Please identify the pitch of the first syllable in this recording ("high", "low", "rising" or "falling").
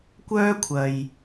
high